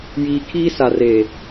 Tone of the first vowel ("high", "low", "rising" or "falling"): low